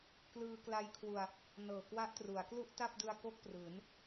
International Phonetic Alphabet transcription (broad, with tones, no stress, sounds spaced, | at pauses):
k l ɯː˧ k l a˦˥ j kʰ w u˧ a̯ | n ɤː˨˩ k w a˦˥ ʔ t r u˩˦ a̯ k l u˥˩ ʔ t a˥˩ p̚ d ɯ˧ a̯ k o˥˩ k̚ p r ɯː˩˦ n